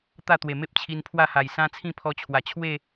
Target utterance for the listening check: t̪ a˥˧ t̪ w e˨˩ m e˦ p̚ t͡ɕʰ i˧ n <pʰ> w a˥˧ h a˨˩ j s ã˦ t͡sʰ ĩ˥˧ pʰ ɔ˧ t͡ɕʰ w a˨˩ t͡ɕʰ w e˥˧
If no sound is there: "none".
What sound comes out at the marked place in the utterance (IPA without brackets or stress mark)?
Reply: pʰ